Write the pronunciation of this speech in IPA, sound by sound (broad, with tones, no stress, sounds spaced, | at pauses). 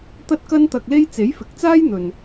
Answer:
t̪ ɐ˥ t̚ k ɐ˥ n t̪ ɐ˧ k̚ l e˥ j t͡s e˨˥ j f ɪ˨˥ k̚ t͡s aː˥ j n̪ ɵ˨ n